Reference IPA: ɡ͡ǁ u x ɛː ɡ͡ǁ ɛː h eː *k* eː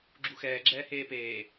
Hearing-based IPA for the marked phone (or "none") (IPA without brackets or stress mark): p